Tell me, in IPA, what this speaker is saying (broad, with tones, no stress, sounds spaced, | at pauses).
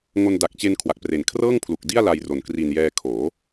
ŋ o˧ n d a˨˩ k̚ t͡ɕ e˧ n kʰ w a˨˩ k̚ p r e˨˩ n kʰ r ɤː˥˩ ŋ pʰ l u˨˩ k̚ d i˥˩ a̯ l a˧ j r o˨˩ n k r i˨˩ n j ɛː˧ kʰ oː˩˦